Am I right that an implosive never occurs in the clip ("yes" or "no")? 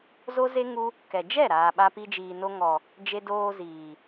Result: no